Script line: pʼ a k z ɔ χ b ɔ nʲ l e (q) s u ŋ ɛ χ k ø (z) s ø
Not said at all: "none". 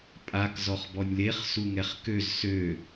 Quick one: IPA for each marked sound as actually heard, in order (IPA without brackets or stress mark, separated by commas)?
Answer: χ, z